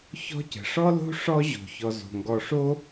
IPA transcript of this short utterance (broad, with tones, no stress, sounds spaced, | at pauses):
ç ɔ̤˥ c ə̤˩ ʂ ɔ˥ l o̤˥ ʂ ɔ˦ ʑ o̤˩ ç ɔ˨ z o̤˩ ŋ ɡ ɔ˨ ʂ o˥